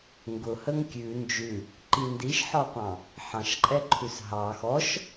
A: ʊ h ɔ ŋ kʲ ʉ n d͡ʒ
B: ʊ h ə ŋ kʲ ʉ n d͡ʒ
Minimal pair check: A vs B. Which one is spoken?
B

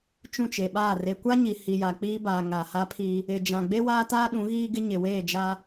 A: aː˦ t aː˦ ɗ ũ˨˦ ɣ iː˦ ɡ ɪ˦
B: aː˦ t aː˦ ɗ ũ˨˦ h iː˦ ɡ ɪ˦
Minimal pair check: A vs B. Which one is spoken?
A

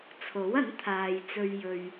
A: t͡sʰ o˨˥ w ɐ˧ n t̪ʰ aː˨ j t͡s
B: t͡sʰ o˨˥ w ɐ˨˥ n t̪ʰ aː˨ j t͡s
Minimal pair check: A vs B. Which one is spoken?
B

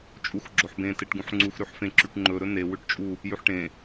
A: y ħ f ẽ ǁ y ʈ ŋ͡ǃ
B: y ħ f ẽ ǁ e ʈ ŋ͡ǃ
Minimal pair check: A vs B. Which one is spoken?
A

